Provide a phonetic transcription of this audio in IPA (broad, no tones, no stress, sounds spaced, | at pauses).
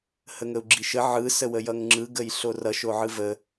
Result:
h ə ŋ ə u̯ ɡ͡ǁ i ʃ ə ʕ ɯ s ə w ə j ʌ ŋ ŋ͡ǁ ɯ ɡ ə j ɬ o r ʌ ʃ o ʕ ɯ v ə